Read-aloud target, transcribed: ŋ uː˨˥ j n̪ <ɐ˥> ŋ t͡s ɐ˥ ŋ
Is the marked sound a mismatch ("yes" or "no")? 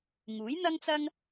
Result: no